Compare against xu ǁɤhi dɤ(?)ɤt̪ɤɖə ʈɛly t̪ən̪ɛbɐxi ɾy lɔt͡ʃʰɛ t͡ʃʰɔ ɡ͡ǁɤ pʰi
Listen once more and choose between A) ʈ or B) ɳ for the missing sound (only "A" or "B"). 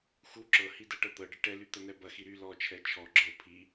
A